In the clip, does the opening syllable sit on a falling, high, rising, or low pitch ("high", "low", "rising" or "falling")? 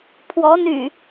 rising